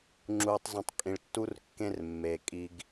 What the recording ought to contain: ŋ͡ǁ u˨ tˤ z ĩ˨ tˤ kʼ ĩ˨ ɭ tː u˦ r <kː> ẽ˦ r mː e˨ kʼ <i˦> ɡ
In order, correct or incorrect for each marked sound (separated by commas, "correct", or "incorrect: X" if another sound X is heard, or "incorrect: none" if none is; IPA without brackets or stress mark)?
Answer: correct, correct